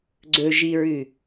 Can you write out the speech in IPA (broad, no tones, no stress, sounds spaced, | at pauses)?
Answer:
ɡ͡ǀ ɵ ʒ i ɹ ʉ